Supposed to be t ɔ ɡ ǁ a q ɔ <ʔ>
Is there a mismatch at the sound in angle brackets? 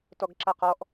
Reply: no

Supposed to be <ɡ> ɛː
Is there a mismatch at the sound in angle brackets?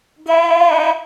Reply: no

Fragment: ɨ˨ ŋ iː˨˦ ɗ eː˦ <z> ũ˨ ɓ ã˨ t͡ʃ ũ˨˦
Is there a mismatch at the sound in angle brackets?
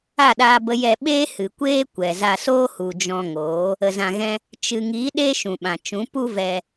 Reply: yes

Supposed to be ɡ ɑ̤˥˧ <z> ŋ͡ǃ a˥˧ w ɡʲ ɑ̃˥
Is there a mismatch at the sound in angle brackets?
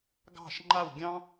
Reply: yes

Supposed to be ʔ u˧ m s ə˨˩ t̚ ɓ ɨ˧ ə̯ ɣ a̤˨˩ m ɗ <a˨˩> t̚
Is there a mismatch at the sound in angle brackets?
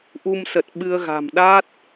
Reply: yes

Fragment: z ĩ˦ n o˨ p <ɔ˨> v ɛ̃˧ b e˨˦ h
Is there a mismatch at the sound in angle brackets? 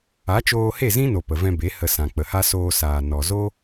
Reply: yes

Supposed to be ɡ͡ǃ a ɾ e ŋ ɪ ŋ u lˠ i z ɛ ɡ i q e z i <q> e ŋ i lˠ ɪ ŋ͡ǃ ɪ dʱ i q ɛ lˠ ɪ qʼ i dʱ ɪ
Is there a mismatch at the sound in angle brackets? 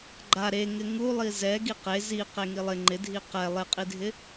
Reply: no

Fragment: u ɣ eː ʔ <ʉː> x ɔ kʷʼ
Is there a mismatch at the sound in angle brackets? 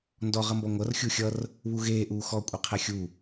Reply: yes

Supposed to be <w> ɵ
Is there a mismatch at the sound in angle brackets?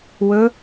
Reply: no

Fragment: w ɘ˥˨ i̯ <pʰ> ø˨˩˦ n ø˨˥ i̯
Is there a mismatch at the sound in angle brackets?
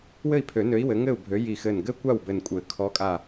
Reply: no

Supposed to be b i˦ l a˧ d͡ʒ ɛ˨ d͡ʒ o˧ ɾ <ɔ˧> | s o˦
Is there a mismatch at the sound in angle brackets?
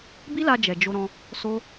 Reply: yes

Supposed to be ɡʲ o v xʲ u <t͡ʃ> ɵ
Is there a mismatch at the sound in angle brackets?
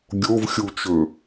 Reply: no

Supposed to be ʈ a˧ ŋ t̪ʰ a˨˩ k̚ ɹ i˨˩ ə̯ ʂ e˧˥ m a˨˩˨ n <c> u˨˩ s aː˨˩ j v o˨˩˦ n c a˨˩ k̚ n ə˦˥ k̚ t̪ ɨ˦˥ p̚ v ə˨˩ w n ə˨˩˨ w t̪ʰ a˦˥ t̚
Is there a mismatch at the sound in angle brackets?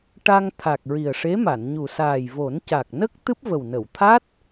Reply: yes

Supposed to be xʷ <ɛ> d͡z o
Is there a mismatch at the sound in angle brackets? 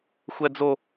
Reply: no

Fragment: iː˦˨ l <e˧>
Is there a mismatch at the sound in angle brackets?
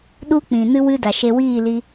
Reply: yes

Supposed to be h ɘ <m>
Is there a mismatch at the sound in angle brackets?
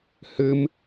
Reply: no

